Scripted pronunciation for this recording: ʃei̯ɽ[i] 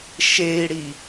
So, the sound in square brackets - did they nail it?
yes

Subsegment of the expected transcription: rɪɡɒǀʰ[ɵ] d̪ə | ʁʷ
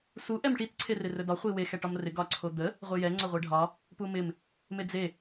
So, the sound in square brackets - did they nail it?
no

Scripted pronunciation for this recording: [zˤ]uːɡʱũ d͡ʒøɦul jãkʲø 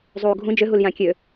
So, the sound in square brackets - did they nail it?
yes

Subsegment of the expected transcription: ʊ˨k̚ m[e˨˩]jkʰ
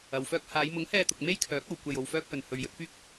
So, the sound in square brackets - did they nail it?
no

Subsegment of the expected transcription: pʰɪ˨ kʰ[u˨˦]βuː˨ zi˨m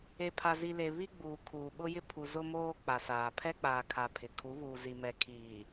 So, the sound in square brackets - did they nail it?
yes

